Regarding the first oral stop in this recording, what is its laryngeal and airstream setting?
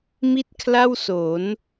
plain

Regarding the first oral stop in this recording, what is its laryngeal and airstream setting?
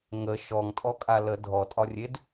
ejective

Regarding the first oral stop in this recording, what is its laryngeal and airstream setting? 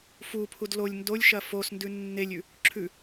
aspirated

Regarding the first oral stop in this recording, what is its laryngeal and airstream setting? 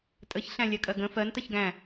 ejective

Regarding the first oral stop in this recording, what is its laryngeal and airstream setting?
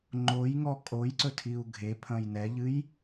click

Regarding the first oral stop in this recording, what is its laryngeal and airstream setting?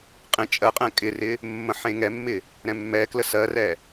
ejective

